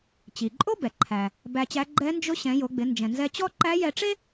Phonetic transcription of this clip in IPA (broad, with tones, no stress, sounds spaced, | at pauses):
t͡ɕ i˩ ǃʼ o˥ b ɛ˩ ǃʰ æ˩ | b æ˧ t͡ɕ æ˧˥ ɡ͡ǃ ɛ˧˥ n d͡ʒ ʊ˧˥ ɕ ɛ̃˩˧ j o˩˧ ɡ͡b ɪ˩˧ n d͡ʒ ɛ̃˩ n z ɛ˧ t͡ɕ ɔ˥ ǃ æ˧˥ j ɛ˧ ʈ͡ʂ e˥